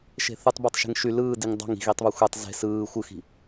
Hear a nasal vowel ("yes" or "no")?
no